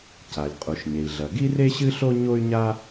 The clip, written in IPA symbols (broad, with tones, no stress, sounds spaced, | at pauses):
c a˩ lʲ qʼ u˩ ʃ ɲ e˩ i̯ ɮ ɐ˩ ɡ i˥ r e˥ ɕ ɨ˥ ɬ o˥ ɲ o˥ y̯ ɲ a˥